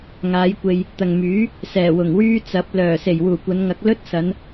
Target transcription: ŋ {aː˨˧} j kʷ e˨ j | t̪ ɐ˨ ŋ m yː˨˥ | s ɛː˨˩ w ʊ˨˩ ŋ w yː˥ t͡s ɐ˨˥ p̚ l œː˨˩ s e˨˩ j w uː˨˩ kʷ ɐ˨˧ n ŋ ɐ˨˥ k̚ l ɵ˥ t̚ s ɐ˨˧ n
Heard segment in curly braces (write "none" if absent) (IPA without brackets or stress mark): aː˨˧